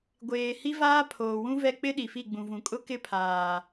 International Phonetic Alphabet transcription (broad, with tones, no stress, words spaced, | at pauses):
ɡʷeː˨ hi˦vaː˦ pʰoː˨wũ˦vɛ˦˨ k͡pɪ˦ ɗi˨fi˦˨ɡ͡bũ˨ vũ˨kʼʊ˦ kɪ˦pʰaː˨